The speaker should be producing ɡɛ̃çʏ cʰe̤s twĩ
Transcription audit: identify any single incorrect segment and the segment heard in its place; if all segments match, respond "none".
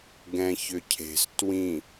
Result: none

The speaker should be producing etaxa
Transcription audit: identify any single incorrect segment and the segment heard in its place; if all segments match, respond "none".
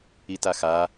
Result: e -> i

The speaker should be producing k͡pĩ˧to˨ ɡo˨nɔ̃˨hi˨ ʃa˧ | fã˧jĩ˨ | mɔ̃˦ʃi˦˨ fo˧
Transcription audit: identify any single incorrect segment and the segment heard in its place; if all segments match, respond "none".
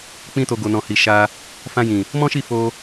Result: none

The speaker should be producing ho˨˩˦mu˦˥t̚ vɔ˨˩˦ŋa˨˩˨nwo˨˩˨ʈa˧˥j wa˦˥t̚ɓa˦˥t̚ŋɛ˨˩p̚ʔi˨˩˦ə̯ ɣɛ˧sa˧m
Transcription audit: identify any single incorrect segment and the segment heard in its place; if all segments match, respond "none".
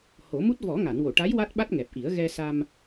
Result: none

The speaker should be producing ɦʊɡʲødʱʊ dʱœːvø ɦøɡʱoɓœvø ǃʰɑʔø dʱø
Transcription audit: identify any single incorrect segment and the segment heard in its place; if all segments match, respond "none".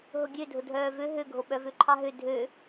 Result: ʔ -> ɦ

